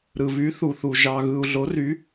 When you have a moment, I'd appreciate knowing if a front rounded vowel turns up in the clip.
yes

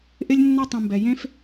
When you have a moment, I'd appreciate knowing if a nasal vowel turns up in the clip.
yes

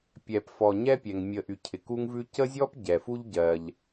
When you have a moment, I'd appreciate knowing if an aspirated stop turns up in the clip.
yes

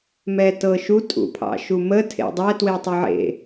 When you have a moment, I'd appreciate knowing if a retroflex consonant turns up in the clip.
no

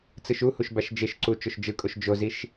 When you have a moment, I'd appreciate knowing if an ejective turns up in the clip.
yes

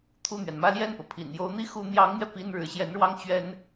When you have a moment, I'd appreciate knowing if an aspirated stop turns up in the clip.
yes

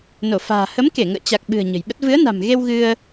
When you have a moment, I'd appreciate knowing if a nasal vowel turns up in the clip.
no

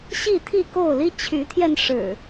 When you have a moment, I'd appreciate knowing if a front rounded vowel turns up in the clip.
yes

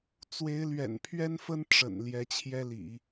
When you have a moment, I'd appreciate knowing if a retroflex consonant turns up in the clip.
yes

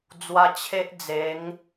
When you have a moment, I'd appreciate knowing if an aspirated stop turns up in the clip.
yes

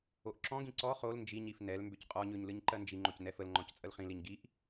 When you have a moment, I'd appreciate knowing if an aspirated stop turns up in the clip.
no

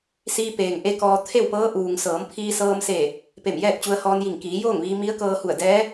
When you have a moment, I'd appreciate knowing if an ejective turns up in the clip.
no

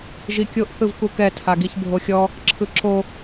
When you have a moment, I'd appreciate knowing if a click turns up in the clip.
yes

